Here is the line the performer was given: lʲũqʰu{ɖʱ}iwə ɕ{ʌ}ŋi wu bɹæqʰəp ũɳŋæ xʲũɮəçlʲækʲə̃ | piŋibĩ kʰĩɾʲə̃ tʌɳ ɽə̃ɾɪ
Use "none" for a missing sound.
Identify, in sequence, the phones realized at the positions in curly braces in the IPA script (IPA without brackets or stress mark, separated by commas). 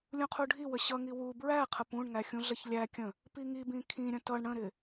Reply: ɖʱ, ʌ